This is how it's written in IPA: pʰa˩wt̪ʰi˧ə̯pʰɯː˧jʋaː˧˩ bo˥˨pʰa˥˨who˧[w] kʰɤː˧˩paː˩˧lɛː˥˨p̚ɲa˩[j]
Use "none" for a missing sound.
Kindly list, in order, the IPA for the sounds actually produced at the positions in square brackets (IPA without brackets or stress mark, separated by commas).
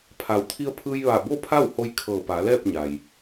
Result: j, j